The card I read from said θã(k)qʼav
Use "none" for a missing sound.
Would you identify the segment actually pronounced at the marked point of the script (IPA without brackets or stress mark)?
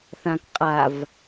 k